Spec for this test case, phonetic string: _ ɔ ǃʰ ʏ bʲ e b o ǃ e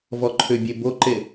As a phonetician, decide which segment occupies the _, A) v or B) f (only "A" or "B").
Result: A